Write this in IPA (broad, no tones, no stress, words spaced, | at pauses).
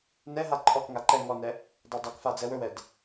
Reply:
nɛɦa ǃʼɔkŋa ǃɛ ŋɔnɛ | dˤadˤɵkfa d͡zɛwɵwɛd